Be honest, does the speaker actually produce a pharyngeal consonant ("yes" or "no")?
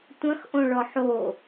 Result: yes